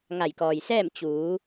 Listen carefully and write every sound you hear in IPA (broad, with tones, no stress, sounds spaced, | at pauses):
ŋ a˧˩ j k ɔː˩ j s ɛː˥˨ m t͡ɕ uː˩˧